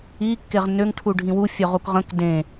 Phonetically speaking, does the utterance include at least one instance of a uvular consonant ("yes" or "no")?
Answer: yes